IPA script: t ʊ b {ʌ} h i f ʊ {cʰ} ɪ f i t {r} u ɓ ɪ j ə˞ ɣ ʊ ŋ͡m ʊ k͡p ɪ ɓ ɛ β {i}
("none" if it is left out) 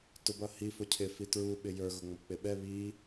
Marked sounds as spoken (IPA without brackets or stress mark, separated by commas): ʌ, cʰ, ɹ, i